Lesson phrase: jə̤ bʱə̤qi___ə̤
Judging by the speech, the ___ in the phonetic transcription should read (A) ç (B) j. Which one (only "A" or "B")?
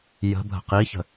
A